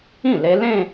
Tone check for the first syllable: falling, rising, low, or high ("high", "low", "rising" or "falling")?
falling